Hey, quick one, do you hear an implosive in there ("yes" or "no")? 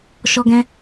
no